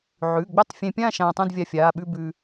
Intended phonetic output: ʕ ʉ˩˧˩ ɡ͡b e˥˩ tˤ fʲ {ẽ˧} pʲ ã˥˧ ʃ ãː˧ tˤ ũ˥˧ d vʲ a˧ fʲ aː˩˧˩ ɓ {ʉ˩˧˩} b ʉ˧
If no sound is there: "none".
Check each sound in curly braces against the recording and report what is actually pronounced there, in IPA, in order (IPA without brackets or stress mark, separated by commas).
ẽ˧, ʉ˥˧